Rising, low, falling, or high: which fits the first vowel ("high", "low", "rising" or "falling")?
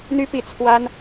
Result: high